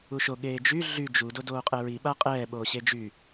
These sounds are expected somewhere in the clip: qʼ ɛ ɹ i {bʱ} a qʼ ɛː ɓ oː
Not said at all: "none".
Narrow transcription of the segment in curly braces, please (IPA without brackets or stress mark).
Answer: ɓ